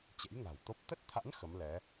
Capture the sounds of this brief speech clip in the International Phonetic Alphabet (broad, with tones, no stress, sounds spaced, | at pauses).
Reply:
t͡ɕ ḛ˧˥ j ŋ a̤˨˩ w t̪ o˦˥ p̚ t̪ ə˦˥ t̚ t̪ʰ a̰˧˥ n x ə˨˦ m l ɛ˨˦